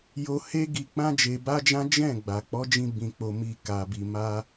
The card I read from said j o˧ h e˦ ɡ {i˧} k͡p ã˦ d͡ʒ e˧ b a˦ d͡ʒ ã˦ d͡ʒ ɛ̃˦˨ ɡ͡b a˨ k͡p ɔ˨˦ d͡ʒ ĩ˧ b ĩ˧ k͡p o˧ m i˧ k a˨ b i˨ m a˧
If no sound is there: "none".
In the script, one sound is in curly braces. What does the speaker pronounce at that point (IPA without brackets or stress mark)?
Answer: i˧